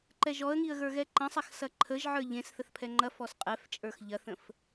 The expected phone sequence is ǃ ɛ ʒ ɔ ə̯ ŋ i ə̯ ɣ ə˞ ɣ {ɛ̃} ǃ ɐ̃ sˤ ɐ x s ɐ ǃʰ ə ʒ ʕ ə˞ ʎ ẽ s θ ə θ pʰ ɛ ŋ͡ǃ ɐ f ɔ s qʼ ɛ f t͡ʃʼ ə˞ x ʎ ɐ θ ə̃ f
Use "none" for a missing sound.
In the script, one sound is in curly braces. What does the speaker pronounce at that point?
ɛ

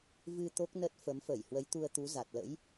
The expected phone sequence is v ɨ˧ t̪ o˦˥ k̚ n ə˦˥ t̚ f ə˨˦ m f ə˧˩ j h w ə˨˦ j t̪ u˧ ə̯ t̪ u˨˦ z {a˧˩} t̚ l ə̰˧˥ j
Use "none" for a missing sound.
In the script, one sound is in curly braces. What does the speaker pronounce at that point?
a˨˩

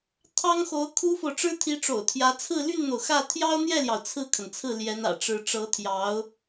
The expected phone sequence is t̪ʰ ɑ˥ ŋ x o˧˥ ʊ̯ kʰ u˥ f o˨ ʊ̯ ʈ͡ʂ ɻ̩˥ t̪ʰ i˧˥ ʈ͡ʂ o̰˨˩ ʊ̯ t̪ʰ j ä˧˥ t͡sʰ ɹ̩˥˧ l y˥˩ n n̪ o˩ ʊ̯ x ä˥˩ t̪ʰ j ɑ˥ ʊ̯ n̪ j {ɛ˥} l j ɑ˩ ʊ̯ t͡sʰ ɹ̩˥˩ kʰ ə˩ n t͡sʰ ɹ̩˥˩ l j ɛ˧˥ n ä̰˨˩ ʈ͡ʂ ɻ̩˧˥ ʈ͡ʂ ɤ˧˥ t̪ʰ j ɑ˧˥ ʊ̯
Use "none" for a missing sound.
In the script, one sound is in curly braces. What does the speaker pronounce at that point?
ɛ˥˩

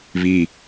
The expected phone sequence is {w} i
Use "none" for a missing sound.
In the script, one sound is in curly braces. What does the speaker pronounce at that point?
β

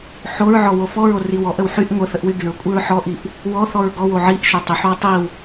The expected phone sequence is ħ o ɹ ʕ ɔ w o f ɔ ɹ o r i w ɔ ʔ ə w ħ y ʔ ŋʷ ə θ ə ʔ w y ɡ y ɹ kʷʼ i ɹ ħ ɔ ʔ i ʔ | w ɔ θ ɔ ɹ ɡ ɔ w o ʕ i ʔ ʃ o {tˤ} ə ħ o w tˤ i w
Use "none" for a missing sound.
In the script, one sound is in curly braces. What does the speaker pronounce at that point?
tˤ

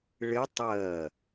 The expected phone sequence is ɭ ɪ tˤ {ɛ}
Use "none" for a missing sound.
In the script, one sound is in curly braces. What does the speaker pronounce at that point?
ɜ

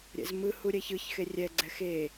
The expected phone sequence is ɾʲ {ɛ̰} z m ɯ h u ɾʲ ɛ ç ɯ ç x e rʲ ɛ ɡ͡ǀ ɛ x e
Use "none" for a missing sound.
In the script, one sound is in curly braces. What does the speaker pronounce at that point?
ɛ̰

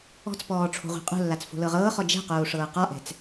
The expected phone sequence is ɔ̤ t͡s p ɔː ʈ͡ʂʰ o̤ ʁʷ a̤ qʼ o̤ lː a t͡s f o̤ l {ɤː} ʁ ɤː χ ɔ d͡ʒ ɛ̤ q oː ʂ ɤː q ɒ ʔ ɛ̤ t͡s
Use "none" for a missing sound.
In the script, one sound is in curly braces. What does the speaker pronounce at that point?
ɤ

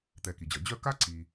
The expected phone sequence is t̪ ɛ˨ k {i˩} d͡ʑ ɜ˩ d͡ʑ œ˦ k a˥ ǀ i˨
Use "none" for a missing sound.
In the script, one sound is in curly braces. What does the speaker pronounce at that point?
i˩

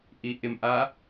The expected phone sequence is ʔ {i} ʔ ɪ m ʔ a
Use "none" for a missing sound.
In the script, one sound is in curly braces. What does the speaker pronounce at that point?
i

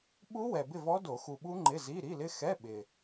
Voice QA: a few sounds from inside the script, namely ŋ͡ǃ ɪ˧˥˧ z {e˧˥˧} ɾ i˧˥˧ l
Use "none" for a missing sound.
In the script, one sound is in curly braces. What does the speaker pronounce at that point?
i˧˥˧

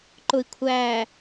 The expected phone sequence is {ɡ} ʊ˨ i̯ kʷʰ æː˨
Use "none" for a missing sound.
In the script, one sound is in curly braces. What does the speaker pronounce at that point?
ǃ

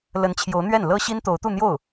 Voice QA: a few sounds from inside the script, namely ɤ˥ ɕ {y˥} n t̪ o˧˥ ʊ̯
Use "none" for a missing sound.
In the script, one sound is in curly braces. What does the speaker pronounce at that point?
i˥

